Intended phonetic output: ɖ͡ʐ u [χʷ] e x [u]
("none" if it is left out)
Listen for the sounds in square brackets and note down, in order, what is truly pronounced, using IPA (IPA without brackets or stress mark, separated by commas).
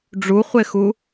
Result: χʷ, u